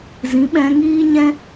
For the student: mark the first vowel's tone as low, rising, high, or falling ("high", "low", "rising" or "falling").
rising